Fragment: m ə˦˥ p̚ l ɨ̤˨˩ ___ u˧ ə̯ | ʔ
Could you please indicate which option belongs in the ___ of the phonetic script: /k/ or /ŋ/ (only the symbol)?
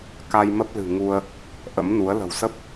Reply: ŋ